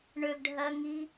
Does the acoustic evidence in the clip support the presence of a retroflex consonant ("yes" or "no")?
yes